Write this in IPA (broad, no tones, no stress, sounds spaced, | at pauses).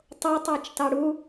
tˤ o tˤ æ t͡ʃ t ɑ ɽ u